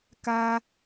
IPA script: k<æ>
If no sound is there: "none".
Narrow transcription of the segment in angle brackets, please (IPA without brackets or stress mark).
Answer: a